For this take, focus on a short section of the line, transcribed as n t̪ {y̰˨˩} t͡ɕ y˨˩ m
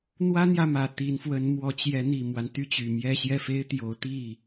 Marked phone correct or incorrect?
incorrect: y˥˩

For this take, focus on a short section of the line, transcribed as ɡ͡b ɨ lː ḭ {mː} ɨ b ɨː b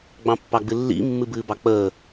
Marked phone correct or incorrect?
correct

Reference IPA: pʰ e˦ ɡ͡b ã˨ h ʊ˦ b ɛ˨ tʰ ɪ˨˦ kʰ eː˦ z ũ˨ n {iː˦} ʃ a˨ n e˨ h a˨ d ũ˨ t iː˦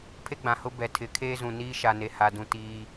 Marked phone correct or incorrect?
correct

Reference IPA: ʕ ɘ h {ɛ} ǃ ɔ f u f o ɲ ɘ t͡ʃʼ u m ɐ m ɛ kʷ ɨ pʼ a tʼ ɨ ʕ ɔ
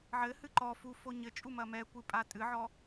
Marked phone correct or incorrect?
incorrect: ɨ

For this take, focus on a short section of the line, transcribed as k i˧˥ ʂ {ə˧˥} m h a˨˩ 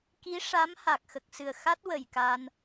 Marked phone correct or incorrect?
incorrect: a˧˥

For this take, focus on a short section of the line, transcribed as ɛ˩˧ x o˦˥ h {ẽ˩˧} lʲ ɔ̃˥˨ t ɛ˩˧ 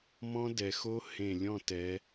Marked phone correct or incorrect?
incorrect: ẽ˧˩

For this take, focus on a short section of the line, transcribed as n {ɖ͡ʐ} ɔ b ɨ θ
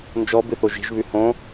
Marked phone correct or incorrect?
incorrect: d͡ʒ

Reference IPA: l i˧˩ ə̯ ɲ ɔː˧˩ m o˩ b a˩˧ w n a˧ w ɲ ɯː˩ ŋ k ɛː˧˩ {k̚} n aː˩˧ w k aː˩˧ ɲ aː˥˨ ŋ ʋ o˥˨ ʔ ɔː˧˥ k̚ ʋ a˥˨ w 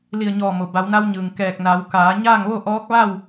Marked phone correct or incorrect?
correct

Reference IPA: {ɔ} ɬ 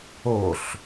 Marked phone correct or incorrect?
incorrect: o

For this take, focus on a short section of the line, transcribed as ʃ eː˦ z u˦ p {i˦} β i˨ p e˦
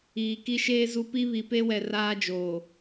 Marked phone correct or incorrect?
correct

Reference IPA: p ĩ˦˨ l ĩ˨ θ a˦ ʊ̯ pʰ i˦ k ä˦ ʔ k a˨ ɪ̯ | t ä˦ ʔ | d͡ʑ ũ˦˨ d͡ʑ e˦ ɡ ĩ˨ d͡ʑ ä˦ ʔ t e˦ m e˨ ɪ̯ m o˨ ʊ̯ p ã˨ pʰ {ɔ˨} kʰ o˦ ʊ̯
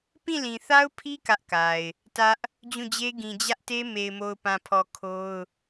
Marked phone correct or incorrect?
correct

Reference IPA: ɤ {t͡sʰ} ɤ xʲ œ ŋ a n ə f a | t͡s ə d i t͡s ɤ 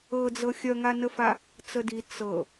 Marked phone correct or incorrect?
incorrect: d͡z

